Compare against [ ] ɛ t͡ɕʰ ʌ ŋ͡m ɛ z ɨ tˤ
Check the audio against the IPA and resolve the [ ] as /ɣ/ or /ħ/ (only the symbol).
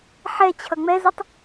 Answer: ħ